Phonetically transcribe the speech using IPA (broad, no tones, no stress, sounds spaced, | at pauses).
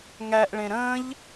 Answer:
ŋ æ ʔ ɭ ẽ ɾ ə̃ː ʎ